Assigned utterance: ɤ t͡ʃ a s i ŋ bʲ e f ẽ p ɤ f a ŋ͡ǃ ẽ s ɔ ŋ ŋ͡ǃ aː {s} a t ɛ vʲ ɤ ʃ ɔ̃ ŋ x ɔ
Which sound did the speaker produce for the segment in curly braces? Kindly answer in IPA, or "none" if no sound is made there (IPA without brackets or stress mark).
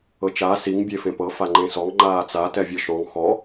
t͡s